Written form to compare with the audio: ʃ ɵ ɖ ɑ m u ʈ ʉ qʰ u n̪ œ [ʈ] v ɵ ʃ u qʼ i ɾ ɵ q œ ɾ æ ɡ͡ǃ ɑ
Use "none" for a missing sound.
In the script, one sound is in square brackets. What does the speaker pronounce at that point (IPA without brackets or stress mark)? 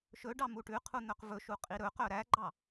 q